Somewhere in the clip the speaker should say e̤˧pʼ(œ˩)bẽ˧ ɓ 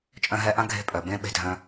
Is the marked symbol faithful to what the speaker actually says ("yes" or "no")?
yes